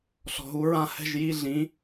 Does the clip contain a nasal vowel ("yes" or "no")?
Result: yes